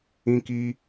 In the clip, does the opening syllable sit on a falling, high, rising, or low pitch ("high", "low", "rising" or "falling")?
high